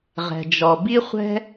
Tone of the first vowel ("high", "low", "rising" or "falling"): low